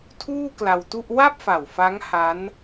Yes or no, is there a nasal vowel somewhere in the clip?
no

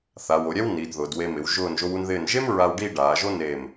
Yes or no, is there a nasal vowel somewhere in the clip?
no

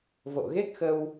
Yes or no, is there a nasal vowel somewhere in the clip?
no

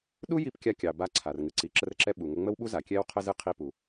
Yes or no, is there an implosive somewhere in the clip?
yes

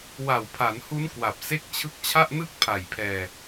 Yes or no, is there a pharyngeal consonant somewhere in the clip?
no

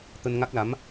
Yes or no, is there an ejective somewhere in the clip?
no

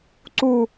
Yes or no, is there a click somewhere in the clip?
yes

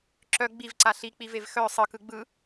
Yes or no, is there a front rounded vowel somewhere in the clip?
yes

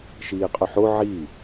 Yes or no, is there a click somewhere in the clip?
no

